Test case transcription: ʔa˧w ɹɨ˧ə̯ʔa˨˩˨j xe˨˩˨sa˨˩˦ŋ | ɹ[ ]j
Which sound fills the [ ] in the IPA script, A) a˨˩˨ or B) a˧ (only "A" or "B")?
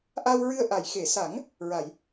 A